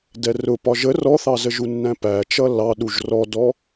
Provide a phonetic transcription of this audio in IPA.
dɛrʊ pɒʒə rɔθɑzəʒu nːæ̃pæ t͡ʃʌlːɑɗuʒ rɔdɔ

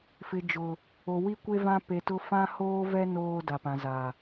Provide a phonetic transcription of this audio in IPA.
fɪ˨d͡ʒʊ˨ | o˨wi˦ kʷe˦ vã˦pe˨tʊ˦ fã˦hoː˦vɛ˦ noː˦da˨pã˨ za˨

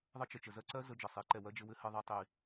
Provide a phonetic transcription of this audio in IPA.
ðˤə˦t͡ʃə˨ t͡ʃə˨zɜ˦ǀɜ˦ zə˧d͡ʒə˨sˤi˨˦ǃɛ˨ wɜ˦d͡ʒɘ˧wɘ˦ hɘ˧ðˤi˧tˤi˨

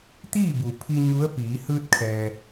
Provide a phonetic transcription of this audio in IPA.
t̪iː˥˨bu˩pʰi˧ ɲu˧˥ə̯piː˩˧ hɯː˧t̚kʰɛː˩

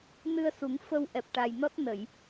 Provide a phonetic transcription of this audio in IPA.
nɨ˧ə̯su˨˩˦ŋfə˧w ʔɛ˨˩p̚ʈa˨˩jnɔ˦˥t̚ nə˨˩˨j

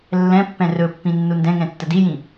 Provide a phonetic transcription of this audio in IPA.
lːɛ̃pːɛ̃ rɵpːĩ nːundɛ̃ŋɛ̃ tːədijĩ

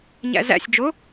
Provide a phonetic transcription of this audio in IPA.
ɲæ̰zæ̰sʲ d͡ʒo

